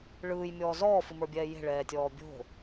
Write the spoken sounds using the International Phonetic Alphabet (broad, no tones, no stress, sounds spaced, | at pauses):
ɭ ɯː j mʲ ɔː z ɔː f ɨ m ə˞ bʲ ɛː j e̤ ɭ ɛː tʲ ɔː bʲ o̤